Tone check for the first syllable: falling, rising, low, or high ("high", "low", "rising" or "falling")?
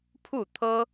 falling